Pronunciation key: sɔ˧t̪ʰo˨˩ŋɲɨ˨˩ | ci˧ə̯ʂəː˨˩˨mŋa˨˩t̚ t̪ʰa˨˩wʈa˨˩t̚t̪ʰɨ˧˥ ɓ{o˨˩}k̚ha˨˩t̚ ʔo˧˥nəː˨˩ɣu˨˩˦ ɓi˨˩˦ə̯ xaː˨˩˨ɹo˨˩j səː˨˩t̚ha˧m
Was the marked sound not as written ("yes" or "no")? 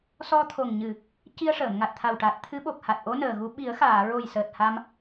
no